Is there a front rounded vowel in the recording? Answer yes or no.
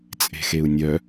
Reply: yes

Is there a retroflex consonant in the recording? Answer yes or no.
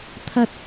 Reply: no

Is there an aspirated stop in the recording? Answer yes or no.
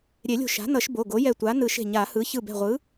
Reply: no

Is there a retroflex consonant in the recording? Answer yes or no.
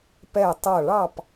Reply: yes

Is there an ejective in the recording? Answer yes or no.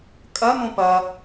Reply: yes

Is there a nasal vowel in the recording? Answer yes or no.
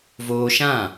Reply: yes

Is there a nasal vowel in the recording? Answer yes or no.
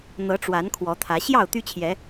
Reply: no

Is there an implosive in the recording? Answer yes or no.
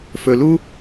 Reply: no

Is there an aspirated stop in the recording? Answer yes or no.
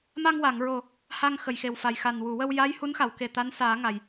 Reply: no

